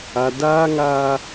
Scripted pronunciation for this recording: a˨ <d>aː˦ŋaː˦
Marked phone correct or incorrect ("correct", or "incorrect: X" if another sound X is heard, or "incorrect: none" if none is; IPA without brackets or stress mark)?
correct